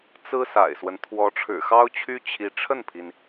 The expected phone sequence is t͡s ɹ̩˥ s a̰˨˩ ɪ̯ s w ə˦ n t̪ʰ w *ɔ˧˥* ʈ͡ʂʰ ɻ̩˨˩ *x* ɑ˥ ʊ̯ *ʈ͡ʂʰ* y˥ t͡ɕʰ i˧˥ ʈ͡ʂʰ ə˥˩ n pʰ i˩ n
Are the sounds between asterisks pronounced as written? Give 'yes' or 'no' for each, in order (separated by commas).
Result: yes, yes, no